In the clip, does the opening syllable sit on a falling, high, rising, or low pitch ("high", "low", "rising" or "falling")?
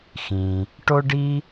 low